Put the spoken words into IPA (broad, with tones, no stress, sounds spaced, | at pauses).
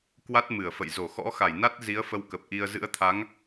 k w a˦˥ t̚ m ɨ˧˩ ə̯ f ə̰˧˨ j z o˧˩ x ɔ̰˧˥ x a˧˩ j n a˦˥ t̚ z i˨˦ ə̯ f ə˧ w k ə˨˩ p̚ ʔ i˧ ə̯ z ɨ̰˧˥ ə̯ t̪ʰ a˨˦ ŋ